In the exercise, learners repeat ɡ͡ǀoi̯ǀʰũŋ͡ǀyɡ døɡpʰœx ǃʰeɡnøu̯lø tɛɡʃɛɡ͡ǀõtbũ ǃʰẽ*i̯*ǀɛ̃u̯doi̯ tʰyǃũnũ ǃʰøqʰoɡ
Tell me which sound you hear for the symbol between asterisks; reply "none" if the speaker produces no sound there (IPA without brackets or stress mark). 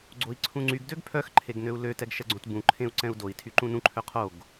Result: u̯